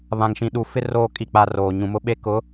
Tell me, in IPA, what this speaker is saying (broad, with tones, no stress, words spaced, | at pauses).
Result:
βã˨ŋʃĩ˨ɗu˨fɪ˦ roː˦ kʼi˦˨k͡pa˦roː˨ ɲũ˨mʊ˦ɓe˦ kʊ˨˦